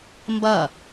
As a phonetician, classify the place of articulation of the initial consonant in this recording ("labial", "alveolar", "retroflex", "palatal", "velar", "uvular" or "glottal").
labial